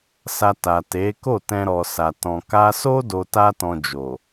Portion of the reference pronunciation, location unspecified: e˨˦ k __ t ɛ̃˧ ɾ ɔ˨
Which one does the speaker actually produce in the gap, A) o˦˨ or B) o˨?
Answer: A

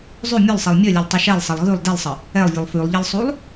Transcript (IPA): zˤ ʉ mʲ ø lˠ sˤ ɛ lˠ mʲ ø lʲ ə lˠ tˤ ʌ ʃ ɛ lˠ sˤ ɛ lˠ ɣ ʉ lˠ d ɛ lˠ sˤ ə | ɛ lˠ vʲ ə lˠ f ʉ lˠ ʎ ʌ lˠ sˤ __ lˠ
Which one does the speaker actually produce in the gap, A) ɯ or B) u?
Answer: B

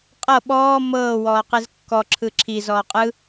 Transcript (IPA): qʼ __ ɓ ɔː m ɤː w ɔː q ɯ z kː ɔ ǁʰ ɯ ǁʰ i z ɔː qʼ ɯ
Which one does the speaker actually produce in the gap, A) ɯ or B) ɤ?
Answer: B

